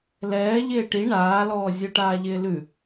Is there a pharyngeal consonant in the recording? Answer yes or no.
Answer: no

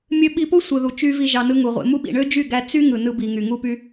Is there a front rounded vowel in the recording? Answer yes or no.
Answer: yes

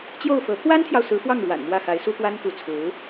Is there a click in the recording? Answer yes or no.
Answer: no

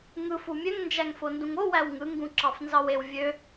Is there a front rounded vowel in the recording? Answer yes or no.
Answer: yes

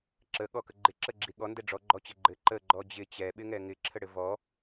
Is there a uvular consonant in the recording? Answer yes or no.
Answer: no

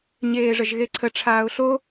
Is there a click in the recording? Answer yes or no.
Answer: yes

